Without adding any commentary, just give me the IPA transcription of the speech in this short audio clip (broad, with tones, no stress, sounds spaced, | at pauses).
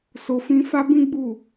s o˧ f ĩ˦ f a˦ b ĩ˦ ɡ͡b u˦˨